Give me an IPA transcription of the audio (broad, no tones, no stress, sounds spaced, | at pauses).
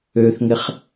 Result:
ø θ ŋ ɪ χ